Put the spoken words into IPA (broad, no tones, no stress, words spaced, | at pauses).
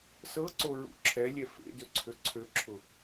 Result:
sɤǀoɹṵ ǁʰɛlʲɛ fḛ døǀʰøǀʰøǁʰʊ